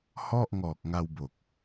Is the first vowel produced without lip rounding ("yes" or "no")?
no